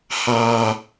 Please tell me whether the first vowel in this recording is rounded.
no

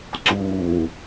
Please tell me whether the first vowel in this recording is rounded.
yes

